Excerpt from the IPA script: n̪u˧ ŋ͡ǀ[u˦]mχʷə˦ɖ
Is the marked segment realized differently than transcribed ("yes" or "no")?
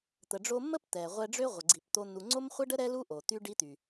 yes